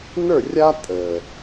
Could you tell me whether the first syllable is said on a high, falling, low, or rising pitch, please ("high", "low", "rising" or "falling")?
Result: falling